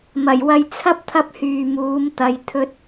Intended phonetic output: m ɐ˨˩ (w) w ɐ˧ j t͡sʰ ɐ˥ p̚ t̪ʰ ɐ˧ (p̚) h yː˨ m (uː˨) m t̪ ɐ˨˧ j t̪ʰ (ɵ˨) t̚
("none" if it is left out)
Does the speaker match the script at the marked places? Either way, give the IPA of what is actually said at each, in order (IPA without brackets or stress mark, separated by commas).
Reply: j, p̚, uː˨˧, ɵ˧